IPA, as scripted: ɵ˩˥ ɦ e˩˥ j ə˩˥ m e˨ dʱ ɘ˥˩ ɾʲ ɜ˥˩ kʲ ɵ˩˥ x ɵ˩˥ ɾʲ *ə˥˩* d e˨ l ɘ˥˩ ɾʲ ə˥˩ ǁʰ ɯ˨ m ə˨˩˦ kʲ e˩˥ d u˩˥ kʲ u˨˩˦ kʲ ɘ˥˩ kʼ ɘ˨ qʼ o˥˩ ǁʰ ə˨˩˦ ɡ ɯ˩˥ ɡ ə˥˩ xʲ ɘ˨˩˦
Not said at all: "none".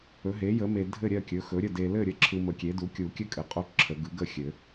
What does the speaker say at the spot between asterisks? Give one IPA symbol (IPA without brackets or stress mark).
ə˥˩